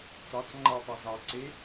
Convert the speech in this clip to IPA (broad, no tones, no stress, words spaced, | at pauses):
t͡sɑt͡s ŋ͡ǃatˤa zɑǀe